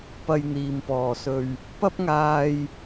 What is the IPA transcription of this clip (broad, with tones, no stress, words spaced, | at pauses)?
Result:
pɐ˧jn̪iː˨mpɔː˨sɵ˧ɥ | pɐ˥p̚ŋaː˧j